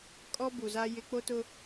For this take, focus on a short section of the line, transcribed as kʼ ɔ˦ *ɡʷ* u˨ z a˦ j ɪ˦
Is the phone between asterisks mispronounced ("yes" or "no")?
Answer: yes